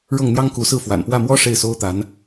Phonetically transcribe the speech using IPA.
ɻ ɤ˥˩ ŋ n̪ j ɑ˥ ŋ k u˧˥ s ɹ̩˥˩ f w a̰˨˩ n p w ä˥˩ m w ɔ˥ ʂ e˥˩ ɪ̯ s o˥ ʊ̯ t̪ a˧˥ n

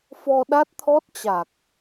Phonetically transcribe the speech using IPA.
f ɔ˧ ɗ a˦˥ t̚ t̪ʰ ɔ˦˥ t̚ t͡ɕ a˨˩ k̚

